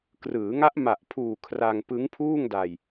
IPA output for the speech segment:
krɯː˩˦ ŋa˦˥ʔma˨˩ʔpʰuː˨˩ kʰra˧ŋpɯ˦˥ŋpʰuː˥˩ŋda˧j

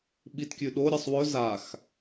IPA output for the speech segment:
ɓitkʲʉɗoɾʲɐsˤ wɵ zax

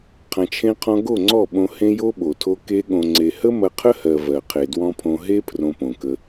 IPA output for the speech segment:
qʰɐ̃˧t͡ʃʰẽ˦qʰɔ̃˦ ɡo˦˨ŋ͡ǀɔ˦˨ ɓõ˧hẽ˦jo˦ ɓo˨tʰo˦ ke˧ɠõ˨ŋ͡ǀe˨hə˦ mɐ˧qʰə˦hɜ˨ vɜ˨qʰe˨dwɔ̃˦pʰõ˧ ɦe˦ pʰrõ˧põ˨kə˧

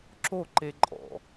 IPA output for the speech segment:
ǁoǃeǃʼɔ̰

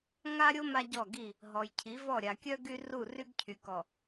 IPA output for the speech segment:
ŋa˦ɾʲo˦ ma˦ɟɔ˦˨ɡi˦˨ | ɦɔ˨jcʰi˨˦vɔ˦˨ ɾʲa˨kʲœ˦ ɡy˦ru˦˨ ry˦ɡcʰy˨kɔ˨

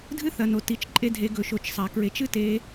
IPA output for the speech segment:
dʱɨ˥θɐ˩no˩ ti˩˧t͡ʃǃʼe˧dʱe˩˧ ɡɵ˩ʃo˩t͡ʃ sˤa˩kɹe˩˧t͡ʃ ɨ˥te˩˧

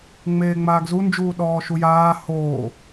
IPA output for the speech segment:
ŋ͡meːŋ͡maːɡzu nd͡ʒuːɗɔːʃujaː hoː

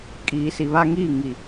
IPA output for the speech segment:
kʼiː˨si˨βa˦ŋiː˦˨ ŋi˨

